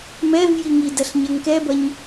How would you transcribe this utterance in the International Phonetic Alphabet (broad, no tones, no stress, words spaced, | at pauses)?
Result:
mɛv jiŋidɐɬ ɲɛŋkɛbɐɲ